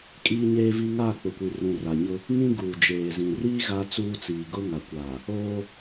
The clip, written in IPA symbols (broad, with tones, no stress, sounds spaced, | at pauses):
kʼ iː˦ ɲ eː˦ v i˦ ŋ aː˦˨ k͡p ʊ˨ kʷ i˨ r ũ˨ r a˨ ɲ ʊ˦ | ŋ ĩ˦ ɡ uː˨ d͡ʒ eː˨ z ĩ˨ r iː˦ ɣ a˦ t͡s uː˦ t͡s iː˨ ɡ ʊ˦ ŋ a˨ kʷ aː˨ | oː˦